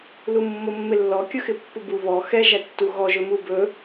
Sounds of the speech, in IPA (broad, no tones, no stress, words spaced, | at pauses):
lumːomːɪlːɔ kʲɵxɪpːubu βɔ xɛ ʒætːuɣɔ ʒɵmubɵ